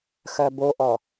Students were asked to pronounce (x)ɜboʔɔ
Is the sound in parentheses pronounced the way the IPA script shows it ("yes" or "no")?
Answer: yes